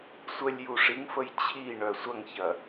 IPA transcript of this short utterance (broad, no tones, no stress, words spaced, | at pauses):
sʷəlʲ juʂiŋfəj t͡ɕʰiɳœ sʷɐŋçɐ